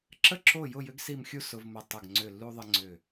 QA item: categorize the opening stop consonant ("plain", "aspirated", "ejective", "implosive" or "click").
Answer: click